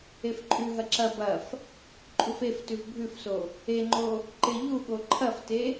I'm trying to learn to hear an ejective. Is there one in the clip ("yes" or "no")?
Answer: yes